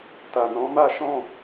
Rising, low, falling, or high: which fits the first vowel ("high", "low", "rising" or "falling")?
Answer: low